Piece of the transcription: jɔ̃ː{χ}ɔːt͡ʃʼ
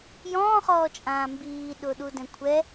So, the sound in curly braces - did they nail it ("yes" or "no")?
yes